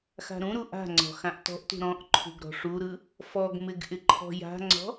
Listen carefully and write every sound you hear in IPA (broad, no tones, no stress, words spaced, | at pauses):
xa̤ɾũɾu ʔa̤ŋ͡ǀɔ̤ xãʔtɔ̤ʔtṳ ɾɔ̃ʔ ǃʰṳɡɾɔ̤ʂuɾɯ | fɔɡmɪɡ ʔɪǃʰɔ̤ja̤ŋ͡ǀɔ̤